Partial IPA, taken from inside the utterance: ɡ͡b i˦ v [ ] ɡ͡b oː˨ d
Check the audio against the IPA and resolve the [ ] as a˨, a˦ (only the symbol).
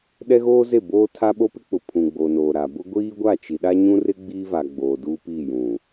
a˨